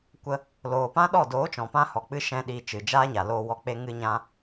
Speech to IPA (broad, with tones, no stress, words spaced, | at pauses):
kʷə˧ | loː˨pã˦ɗɔ˦˨ doː˨˦t͡ʃɔ̃˨pã˧hɔ˨ k͡pɨ˦ ʃɛ̃˦ɗiː˧t͡ʃɨ˨ d͡ʒaː˦ɲa˨loː˧ wɔ˧k͡pe˦ŋɨ˦ɲã˦